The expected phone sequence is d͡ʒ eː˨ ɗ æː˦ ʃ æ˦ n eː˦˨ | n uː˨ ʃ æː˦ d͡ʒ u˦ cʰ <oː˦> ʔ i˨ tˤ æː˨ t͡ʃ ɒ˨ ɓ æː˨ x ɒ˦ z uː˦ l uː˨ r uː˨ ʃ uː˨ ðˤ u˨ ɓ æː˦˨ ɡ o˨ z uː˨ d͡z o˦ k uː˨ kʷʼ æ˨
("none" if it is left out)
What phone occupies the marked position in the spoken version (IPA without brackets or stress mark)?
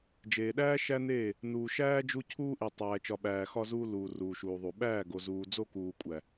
uː˦